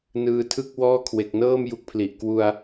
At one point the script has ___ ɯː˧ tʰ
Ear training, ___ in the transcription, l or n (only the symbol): n